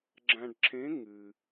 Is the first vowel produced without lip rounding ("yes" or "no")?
yes